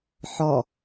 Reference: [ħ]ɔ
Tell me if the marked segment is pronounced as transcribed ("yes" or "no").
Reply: yes